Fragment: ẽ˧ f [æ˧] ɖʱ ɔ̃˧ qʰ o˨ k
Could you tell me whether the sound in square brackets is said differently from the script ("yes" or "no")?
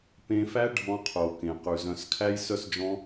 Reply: yes